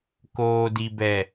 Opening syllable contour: low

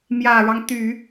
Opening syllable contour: low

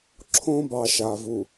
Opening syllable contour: high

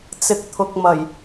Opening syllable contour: low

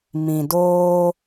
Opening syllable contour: low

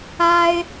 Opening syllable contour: high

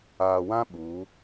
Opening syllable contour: low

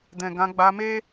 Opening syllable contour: low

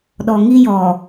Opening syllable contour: low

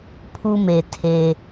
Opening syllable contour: high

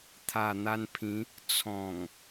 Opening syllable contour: low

